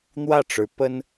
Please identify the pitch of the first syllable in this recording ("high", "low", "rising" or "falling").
falling